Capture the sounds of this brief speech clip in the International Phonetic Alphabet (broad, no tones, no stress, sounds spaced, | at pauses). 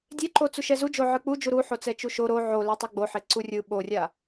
dʲ e ǃ o t͡s u ʃ ɛ z u d͡ʒ o ʕ ɯ k͡p u d͡ʒ u ɾ u ħ o t͡s ɛ t͡ʃ u ʃ o ɾ o ʕ o l e tˤ a ɡ͡b o ħ e ǀ u rʲ ɯ ɓ o rʲ a